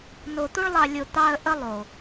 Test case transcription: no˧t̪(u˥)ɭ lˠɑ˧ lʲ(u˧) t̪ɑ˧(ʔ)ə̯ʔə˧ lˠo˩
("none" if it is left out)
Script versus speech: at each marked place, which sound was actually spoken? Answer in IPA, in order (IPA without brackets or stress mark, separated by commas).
u˥, o˧, none